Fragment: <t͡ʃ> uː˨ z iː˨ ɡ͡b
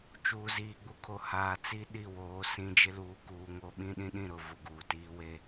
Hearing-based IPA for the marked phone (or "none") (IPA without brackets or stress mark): t͡ʃ